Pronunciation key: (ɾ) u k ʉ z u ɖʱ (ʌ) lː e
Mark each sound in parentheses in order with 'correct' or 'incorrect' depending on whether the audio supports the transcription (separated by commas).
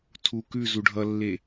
incorrect, correct